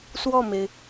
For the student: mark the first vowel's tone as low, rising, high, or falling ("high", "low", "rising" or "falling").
falling